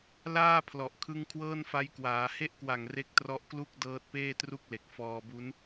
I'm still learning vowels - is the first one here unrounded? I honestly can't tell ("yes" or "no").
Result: yes